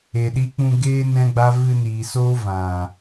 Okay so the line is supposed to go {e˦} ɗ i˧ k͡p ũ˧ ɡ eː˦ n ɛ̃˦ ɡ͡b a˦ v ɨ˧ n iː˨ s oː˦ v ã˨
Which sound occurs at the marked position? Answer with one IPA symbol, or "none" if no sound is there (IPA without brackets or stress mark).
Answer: e˨